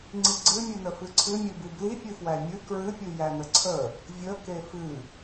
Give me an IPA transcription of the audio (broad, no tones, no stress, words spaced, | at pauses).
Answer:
ŋ͡ǀiɡ͡ǀɨmʲɨnə fɨǀʰɨmʲɨbɨ blipʲɨfwæ mʲɨ kɹɨpʲɨ jænəǀʰə | vʲə kefɨ